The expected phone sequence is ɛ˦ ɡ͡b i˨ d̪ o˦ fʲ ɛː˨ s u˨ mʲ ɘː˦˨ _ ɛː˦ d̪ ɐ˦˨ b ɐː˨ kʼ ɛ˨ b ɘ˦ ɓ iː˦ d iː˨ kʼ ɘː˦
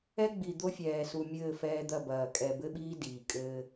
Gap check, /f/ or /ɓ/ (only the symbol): f